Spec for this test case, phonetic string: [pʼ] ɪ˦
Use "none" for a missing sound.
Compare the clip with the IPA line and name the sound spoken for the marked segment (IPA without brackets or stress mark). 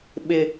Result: ɓ